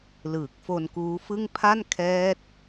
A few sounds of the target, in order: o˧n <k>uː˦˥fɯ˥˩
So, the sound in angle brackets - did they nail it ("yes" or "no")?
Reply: yes